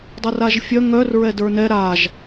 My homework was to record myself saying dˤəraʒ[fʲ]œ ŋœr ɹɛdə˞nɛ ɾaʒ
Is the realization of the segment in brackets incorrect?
no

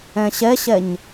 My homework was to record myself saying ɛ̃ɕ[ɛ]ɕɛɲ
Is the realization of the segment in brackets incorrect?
no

